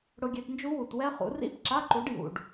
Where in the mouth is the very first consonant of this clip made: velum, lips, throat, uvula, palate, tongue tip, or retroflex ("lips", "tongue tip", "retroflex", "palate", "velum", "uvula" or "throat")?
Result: retroflex